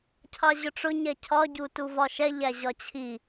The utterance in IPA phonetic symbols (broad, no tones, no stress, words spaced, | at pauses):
cʰɑʑʊʈ͡ʂʊ ɲɛcʰɒ ɟutuvɒʃɛ ʎæʑɒt͡ɕʰi